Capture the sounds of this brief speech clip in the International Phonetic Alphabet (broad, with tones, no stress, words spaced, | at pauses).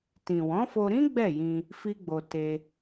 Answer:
tĩ˨wɔ̃˨˦fo˧ɾĩ˦ ɡ͡bɛ˦˨jĩ˧ | fi˦ɡ͡bo˧ te˧